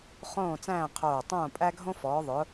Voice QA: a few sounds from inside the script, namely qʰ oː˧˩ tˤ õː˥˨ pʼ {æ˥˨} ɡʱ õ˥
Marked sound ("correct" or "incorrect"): incorrect